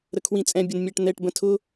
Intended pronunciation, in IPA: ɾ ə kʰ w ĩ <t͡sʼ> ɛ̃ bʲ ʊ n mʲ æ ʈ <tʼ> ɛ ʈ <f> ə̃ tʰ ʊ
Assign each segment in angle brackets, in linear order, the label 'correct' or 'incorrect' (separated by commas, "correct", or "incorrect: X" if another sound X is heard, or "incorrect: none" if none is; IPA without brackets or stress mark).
correct, incorrect: n̪, incorrect: b